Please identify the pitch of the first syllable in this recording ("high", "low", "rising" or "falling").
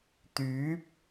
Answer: rising